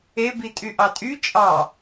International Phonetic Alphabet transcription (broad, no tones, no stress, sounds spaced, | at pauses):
e b i tʼ y ʔ ɑ tʼ y t͡ʃʼ ɑ